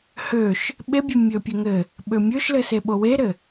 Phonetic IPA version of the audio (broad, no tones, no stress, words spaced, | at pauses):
høʃ | ɓebʲø mʲøpʲɘŋɘ | ɓømʲøʃlɘ seɓoweɾɘ